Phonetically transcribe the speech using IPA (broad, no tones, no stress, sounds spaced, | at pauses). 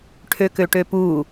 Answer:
ʈʰ ø k ø ʈ ø p u